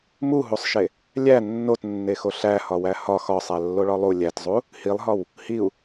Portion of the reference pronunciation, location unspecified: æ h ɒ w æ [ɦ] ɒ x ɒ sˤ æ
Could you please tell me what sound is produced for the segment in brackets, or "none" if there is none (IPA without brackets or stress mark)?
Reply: h